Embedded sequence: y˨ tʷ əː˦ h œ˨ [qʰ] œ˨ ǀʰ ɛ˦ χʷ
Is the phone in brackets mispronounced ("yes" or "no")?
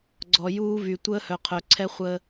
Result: no